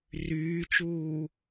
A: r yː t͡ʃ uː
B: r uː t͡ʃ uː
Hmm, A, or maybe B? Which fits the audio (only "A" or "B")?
A